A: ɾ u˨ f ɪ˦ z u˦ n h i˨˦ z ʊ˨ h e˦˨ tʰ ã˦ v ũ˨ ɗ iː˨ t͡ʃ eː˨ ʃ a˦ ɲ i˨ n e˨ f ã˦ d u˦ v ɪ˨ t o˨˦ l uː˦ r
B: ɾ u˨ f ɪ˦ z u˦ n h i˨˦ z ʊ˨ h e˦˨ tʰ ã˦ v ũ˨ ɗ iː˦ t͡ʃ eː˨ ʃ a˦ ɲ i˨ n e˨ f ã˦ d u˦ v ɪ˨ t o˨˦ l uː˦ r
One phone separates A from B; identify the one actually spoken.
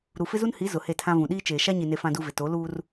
B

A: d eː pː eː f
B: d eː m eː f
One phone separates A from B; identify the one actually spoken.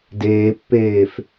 A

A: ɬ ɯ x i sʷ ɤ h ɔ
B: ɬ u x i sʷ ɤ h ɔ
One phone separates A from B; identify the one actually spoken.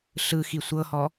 A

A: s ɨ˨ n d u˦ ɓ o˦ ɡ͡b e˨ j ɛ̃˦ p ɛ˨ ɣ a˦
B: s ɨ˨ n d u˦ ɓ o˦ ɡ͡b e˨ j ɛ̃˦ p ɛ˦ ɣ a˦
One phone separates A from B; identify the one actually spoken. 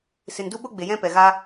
A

